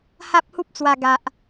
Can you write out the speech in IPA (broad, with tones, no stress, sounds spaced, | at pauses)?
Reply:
h a˦ p̚ h u˦ p̚ t͡s w a˨˩ ɡ a˨ ʔ